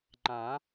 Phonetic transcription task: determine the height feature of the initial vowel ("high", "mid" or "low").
low